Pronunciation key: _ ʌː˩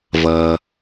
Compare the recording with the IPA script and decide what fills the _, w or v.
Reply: v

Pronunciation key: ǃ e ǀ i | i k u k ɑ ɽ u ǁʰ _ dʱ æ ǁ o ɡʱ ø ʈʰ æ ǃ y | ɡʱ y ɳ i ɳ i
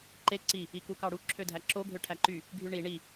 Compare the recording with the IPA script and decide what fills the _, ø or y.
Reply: ø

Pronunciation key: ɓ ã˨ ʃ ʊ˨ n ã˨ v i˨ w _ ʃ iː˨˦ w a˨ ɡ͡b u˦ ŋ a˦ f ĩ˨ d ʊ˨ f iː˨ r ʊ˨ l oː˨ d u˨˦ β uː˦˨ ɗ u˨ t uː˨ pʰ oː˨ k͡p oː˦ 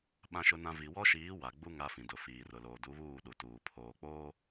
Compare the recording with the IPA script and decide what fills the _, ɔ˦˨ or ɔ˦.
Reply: ɔ˦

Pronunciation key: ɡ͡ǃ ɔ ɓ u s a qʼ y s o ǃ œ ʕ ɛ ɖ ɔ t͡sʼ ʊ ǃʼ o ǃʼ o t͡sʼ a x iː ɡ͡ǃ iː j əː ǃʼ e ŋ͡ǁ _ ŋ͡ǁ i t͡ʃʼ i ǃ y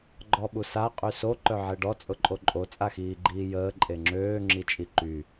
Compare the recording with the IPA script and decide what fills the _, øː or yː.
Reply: øː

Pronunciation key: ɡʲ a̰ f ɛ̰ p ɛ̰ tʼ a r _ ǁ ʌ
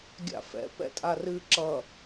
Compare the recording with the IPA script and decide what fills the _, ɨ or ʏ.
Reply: ɨ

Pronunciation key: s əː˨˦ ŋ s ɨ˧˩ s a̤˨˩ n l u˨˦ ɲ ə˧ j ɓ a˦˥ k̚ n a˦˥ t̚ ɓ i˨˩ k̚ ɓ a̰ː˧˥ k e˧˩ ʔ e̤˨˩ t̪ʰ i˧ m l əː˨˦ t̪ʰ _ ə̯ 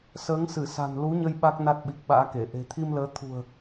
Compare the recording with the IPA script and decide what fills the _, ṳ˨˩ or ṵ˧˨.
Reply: ṳ˨˩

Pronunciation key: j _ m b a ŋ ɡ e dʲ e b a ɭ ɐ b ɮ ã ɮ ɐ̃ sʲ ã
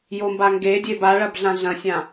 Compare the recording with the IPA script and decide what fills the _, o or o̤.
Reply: o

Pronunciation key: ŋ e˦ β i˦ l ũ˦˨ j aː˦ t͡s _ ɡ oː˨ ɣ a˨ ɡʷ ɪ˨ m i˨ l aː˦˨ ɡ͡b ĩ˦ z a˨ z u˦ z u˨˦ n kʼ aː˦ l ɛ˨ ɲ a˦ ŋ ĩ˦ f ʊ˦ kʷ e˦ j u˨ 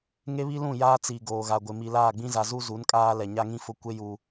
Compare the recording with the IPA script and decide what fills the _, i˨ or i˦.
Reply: i˨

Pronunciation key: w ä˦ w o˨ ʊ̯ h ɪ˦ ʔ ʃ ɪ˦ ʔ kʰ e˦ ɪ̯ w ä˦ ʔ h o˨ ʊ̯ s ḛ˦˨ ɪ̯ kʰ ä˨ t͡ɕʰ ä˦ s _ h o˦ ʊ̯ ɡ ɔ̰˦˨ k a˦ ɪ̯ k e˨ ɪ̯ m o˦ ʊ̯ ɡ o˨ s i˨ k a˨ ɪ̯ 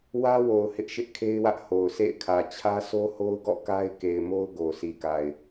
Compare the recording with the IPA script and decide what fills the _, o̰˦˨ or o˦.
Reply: o˦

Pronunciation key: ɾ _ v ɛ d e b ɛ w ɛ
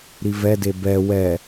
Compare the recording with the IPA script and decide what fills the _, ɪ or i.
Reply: i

